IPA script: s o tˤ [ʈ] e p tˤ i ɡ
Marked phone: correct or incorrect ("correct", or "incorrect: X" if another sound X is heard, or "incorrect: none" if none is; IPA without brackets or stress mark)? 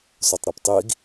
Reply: incorrect: ɾ